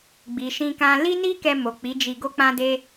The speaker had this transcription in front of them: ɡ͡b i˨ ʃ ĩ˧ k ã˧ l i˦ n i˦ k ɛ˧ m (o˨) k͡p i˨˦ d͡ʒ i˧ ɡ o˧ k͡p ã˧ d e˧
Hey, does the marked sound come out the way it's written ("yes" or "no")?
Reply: yes